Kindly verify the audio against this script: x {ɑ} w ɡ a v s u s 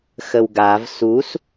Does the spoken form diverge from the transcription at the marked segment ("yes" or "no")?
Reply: yes